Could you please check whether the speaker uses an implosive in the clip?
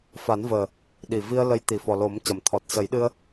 yes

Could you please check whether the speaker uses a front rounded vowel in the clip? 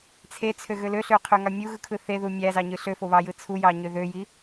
yes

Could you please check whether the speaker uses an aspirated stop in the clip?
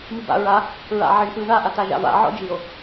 no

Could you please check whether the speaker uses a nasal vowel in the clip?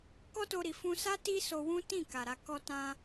yes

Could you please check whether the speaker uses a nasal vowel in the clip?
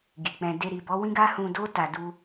yes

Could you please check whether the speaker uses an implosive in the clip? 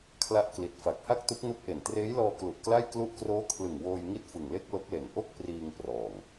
no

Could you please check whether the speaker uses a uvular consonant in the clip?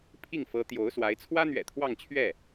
no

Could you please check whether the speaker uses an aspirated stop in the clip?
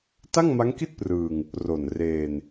no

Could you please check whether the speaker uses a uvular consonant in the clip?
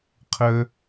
yes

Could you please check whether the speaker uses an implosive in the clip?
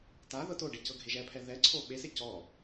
yes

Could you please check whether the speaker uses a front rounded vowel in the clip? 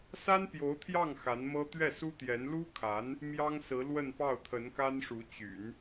yes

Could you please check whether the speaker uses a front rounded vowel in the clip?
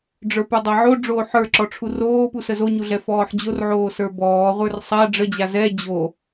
no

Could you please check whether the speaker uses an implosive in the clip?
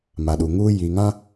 yes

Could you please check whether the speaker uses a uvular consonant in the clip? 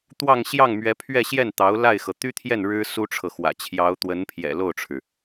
no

